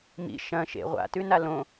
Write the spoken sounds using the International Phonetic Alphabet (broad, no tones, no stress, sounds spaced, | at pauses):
m ḭ ʃ ɐ̃ ʃ ḛ ʁʷ a̰ t ʉ n a l õ